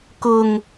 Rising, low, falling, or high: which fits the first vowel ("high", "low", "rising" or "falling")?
low